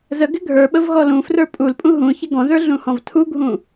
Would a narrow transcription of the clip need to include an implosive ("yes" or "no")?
yes